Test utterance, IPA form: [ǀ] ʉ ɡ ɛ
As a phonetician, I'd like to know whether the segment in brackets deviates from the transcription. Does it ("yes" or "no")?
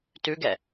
yes